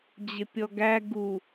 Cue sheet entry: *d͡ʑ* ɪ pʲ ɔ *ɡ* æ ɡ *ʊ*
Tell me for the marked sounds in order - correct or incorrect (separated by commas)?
correct, correct, incorrect